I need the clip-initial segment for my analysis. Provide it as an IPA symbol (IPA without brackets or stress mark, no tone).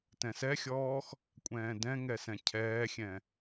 t